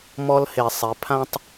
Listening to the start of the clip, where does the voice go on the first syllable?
high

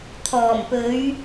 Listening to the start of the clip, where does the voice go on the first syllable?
low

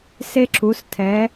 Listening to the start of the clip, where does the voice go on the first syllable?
high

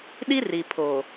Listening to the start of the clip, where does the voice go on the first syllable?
high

